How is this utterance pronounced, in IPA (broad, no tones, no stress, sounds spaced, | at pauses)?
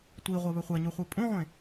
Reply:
tʷ i ʁʷ ɛ β ɵ χʷ æ ɲ u χʷ e pʼ ũ ʁʷ ẽ